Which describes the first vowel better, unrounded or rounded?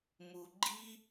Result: rounded